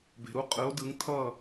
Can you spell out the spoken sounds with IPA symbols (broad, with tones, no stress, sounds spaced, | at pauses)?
b e̤˧ ɾ u˥˧ qʼ ɯ˧˥ o̯ d ɯ˧˥ ŋ tʰ ʌ˥˧